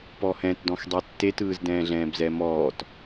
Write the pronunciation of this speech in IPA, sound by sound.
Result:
p ɔ h ɛ̃ t d ɔ̃ x dˤ ɛ tː e t ɯː z d ɛ̃ː ɮ ɛ̃ː b z ɛ m ɔː t

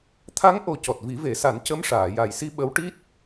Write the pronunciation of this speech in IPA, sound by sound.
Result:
t̪ʰ a˧˥ ŋ ʔ o˨˩˦ c ɔ˨˩ t̚ v i˨˩˦ v e˨˩˦ s a˨˩˦ n c ə˧˥ m ʂ aː˨˩˨ j a˨˩ j s i˧ ɓ ə˧˥ w ʈ i˦˥ t̚

